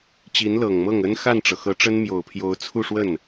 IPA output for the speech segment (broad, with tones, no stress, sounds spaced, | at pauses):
t͡ɕ i˧˥ n l ɤ˨˩ ŋ m ɤ˥˩ ŋ ə˥ n x a˥˩ n ʈ͡ʂ ɤ˩ x ɤ˧˥ ʈ͡ʂ ə˥ n m j o˨˩ ʊ̯ pʰ j o˧˥ ʊ̯ t͡sʰ u˥˧ ʂ w ə˥˩ n